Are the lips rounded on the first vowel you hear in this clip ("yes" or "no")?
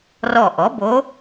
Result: yes